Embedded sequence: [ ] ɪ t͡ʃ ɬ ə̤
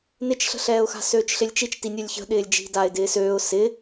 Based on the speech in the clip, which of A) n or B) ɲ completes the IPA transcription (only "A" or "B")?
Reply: A